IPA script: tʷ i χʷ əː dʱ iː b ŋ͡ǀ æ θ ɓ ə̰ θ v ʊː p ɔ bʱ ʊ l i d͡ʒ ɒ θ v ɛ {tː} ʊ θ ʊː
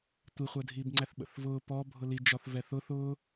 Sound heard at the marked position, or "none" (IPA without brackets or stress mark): θ